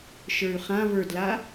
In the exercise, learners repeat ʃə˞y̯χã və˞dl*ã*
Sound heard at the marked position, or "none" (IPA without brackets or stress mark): a